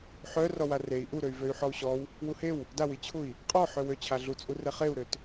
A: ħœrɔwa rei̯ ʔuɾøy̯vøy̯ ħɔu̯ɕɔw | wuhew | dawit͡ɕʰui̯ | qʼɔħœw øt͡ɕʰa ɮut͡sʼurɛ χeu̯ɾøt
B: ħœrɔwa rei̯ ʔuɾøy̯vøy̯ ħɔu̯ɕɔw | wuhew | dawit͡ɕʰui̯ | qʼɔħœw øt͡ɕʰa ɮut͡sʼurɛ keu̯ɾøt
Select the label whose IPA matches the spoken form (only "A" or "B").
A